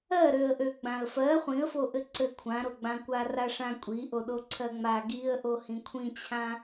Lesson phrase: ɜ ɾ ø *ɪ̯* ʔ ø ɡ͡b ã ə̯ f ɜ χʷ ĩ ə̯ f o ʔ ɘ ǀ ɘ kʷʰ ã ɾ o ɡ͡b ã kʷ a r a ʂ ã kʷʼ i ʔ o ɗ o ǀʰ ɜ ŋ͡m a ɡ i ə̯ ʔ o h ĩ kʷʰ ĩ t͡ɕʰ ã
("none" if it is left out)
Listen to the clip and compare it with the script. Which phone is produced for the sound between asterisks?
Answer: ə̯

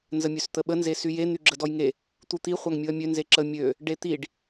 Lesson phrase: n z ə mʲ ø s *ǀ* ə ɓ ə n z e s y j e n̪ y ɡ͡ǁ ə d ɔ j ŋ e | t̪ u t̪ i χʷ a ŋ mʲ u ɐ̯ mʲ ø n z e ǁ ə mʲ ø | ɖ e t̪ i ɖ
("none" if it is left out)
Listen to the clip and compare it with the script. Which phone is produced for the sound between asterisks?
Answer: t̪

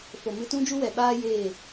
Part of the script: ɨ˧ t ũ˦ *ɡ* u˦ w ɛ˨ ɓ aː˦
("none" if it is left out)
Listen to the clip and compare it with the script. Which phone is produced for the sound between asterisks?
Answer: d͡ʒ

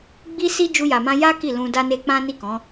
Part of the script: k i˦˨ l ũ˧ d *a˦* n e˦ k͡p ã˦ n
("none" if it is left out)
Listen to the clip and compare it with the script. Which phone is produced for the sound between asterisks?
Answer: a˦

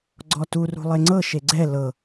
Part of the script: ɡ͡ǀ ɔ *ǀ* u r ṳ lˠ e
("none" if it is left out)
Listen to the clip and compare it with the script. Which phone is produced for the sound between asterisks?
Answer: t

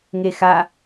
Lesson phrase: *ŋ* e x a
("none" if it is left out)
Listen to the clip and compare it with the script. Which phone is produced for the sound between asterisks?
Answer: ŋ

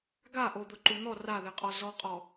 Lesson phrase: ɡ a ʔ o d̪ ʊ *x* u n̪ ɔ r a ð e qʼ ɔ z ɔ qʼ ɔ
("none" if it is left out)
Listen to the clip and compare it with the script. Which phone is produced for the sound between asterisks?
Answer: ǃ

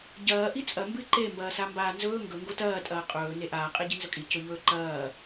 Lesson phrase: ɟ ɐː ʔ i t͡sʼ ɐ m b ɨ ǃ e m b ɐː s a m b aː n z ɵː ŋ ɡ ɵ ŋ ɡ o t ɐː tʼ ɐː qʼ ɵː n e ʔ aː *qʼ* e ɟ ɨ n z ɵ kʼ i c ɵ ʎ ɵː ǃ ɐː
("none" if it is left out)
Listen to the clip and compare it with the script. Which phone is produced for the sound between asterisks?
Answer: qʼ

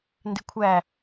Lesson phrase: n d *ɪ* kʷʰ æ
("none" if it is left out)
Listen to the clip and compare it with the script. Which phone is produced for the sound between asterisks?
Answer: ɪ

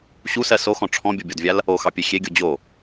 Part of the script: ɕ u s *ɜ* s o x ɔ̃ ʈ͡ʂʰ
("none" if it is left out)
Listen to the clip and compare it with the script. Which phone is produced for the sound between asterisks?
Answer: ɜ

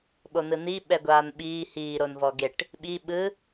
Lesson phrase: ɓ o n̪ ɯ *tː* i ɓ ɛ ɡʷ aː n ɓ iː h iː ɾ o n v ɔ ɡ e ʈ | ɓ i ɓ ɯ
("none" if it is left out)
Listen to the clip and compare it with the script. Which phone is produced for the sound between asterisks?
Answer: n̪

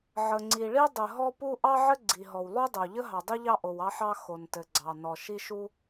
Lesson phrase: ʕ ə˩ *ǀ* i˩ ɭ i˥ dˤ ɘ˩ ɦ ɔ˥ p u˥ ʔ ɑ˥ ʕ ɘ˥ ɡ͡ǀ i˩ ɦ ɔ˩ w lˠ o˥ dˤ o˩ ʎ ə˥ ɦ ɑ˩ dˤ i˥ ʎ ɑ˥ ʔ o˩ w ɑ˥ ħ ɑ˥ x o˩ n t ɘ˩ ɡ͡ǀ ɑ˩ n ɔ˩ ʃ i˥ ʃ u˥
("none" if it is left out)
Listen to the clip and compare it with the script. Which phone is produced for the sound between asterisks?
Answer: ŋ͡ǀ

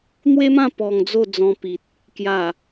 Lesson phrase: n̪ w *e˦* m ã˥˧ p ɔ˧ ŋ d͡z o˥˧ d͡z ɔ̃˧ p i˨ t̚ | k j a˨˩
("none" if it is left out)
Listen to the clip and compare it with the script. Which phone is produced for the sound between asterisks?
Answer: e˦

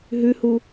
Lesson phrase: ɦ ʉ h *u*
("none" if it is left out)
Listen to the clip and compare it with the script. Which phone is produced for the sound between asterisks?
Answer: u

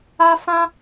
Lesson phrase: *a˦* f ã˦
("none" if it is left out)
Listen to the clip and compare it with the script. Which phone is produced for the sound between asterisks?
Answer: a˦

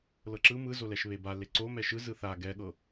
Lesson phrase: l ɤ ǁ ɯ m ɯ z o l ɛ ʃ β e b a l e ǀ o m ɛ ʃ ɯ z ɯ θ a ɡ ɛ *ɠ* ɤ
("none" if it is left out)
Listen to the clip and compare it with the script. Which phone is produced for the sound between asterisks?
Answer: ɠ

